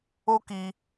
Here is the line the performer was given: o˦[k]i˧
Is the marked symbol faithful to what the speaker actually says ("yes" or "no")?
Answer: yes